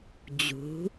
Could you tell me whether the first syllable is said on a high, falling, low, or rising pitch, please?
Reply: rising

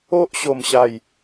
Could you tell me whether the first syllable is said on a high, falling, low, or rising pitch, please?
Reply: high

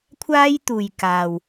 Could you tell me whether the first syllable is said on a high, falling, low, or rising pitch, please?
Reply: high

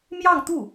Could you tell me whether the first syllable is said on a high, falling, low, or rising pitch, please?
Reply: falling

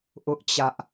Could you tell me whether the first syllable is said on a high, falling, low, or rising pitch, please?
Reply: high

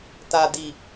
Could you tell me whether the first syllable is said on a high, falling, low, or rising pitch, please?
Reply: low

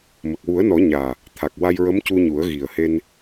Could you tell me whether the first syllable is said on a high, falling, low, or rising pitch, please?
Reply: low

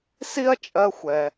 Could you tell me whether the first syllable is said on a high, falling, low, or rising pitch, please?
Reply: high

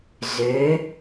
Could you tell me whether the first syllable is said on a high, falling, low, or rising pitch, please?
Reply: rising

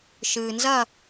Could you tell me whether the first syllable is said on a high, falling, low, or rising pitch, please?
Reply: low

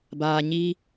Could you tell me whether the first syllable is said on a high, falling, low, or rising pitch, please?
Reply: low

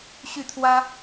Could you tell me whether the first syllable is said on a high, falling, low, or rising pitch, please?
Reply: falling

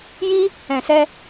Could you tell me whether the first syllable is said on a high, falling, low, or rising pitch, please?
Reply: high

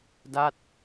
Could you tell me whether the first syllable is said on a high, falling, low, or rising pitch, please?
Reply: falling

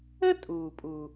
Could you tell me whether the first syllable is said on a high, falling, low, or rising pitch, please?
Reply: high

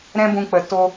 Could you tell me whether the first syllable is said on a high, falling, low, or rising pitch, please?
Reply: high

